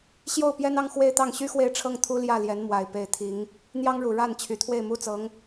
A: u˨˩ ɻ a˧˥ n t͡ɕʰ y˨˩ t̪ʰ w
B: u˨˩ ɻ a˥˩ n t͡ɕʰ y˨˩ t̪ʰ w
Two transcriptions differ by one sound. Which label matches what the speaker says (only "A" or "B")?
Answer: B